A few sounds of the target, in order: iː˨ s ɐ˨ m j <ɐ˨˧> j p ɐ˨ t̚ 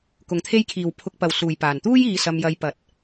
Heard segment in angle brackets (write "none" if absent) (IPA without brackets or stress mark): ɐ˨˧